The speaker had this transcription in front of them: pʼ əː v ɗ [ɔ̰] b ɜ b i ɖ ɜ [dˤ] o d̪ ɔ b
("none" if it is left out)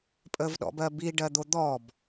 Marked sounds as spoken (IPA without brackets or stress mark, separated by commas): ɔ̰, d̪